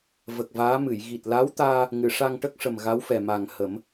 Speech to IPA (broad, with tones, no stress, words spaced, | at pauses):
və˨˩k̚vaː˧˥mɨ˨˩˨j ɣi˨˩t̚la˧˥wt̪aː˧ | ŋɨ˨˩˨ʂa˧ŋʈə˦˥k̚ʂə˨˩m ɣa˧˥wfɛ˨˩ma˨˩ŋ hə˨˩˦m